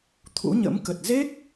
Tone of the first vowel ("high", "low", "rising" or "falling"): rising